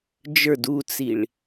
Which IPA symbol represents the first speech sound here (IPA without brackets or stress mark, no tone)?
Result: d͡ʒ